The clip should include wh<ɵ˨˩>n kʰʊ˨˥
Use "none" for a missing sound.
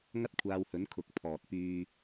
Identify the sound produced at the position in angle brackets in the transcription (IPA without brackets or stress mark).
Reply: ɵ˨˥